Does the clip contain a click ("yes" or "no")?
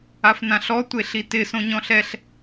no